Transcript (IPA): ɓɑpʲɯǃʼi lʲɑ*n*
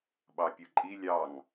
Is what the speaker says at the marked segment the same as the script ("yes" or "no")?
no